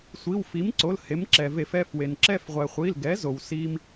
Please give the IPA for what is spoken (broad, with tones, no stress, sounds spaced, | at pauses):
sʷ i˩˧˩ w f i˩˥ m ǀ o˩˧˩ l h e˩˥ m ǁ ɛ˩ v e˧˩˧ f ɛ˩˧˩ f w e˩ n ǁ ɛ˦˨ f ʁʷ ɛ˩ χʷ i˩˧˩ l ɡ ɛ˩˥ z o˩ w s i˦ m